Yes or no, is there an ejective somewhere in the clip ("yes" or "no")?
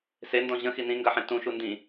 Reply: no